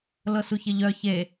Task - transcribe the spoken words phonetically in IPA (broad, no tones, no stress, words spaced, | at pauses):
lɤsuçɪʎœ çe